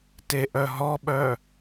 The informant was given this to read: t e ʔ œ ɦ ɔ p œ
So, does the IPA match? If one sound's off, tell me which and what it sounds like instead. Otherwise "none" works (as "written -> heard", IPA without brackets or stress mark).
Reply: p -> ɓ